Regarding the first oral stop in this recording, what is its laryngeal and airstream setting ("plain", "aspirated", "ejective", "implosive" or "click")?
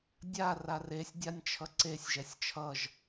plain